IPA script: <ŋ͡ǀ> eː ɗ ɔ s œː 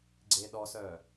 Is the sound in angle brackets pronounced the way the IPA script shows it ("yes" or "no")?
no